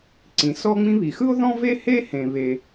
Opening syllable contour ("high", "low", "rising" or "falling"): low